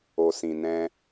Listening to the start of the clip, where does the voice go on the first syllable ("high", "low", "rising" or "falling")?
low